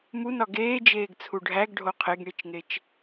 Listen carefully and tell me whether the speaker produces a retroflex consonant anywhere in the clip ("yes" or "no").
yes